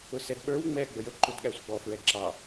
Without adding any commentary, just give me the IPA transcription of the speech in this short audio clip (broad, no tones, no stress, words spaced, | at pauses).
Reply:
ʊsɛdɓə˞w ŋ͡mɛ ɡ͡bəjə ǃudɠæsʷəɡ͡bɔ fɹɛǁɑ